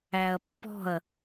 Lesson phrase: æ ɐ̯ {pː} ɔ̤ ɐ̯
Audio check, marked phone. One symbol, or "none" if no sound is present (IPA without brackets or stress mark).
pː